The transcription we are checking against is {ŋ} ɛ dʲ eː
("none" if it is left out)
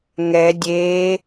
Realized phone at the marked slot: ŋ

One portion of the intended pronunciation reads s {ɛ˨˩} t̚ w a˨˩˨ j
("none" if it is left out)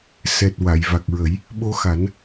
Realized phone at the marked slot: ɛ˨˩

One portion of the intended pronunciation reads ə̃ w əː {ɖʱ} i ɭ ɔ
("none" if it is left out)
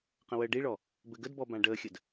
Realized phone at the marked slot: ɖ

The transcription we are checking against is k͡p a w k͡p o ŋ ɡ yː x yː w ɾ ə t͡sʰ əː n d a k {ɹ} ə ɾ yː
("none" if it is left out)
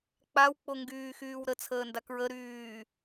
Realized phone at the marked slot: ɹ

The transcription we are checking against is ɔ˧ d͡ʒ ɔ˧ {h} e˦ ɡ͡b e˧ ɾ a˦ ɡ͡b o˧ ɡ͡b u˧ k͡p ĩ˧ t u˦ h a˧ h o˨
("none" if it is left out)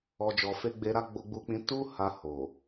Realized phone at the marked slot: f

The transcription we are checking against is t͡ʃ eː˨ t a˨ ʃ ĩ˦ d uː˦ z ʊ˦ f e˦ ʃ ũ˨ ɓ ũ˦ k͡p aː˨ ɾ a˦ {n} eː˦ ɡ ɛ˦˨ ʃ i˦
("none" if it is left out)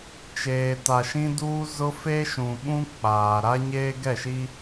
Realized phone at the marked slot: ɲ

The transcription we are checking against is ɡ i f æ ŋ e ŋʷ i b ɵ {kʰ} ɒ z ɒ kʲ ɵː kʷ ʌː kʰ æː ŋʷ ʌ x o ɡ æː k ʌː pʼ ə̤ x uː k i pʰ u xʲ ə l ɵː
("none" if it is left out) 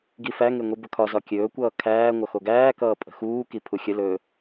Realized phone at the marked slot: kʰ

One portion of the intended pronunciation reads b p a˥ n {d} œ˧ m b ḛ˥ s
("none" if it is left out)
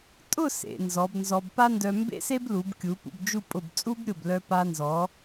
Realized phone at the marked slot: d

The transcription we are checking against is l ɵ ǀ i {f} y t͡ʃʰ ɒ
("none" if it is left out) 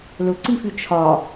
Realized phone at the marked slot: f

